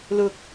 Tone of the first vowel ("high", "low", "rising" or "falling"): low